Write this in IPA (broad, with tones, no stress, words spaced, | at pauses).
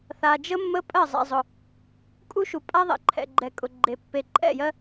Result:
θa˨ d͡ʒə˦mːə˦ pʼɜ˦˨zˤɛ̰˨zˤʊ˨ | kʼu˦ʃu˨pʼa˦ ðˤɛ̰˨ǃʰɛ̰˨ɡ͡ǃɛ˨ kʼʊ˨ɡ͡ǃe˨ pːe˨ǃʼɛ̰˦˨jɜ˦